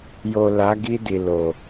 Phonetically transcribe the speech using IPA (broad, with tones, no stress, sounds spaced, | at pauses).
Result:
j o˨ l a˨˦ ɡ i˧ d i˨ l o˨